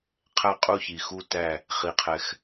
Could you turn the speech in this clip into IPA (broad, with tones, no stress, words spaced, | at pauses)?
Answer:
qʰæ˥˨qʼu˥˨çi˨˩xu˥˨ tæ˥˨ | χi˨˩qʰɛ˨˩x